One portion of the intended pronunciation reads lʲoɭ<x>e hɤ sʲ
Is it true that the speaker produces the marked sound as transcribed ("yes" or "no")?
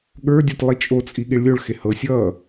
yes